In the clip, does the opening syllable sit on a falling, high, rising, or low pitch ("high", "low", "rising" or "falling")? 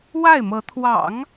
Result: falling